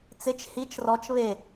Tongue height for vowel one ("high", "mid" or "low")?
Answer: high